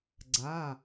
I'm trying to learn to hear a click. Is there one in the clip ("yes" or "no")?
yes